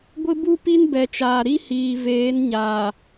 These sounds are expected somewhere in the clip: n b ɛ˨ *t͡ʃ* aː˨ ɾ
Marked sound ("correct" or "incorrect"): correct